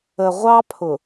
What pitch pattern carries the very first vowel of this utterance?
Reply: low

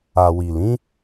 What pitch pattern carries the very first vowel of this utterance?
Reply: low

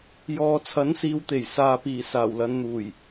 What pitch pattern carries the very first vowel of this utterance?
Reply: low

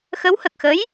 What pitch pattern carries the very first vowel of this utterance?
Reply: rising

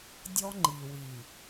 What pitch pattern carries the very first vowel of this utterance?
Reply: high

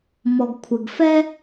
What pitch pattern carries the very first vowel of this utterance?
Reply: low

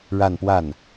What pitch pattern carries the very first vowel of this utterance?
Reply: falling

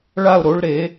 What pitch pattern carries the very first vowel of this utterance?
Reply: falling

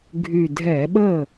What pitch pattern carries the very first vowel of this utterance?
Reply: low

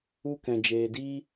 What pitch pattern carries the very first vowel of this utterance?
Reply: high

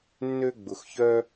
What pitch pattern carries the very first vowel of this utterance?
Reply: high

